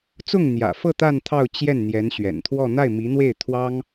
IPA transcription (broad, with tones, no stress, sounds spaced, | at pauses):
t͡s ʊ˥˩ ŋ n̪ j ä̰˨˩ f ɤ˥˧ t̪ a˥˧ n t̪ʰ ɑ˥˧ ʊ̯ t͡ɕ j ɛ˥˩ n n̪ j ɛ˧˥ n ɕ ɥ ɛ̰˨˩ n t̪ʰ w ɔ˥˧ n̪ a˥˩ ɪ̯ m i˧˥ n̪ w e˥˩ ɪ̯ t̪ʰ w ɑ˥ ŋ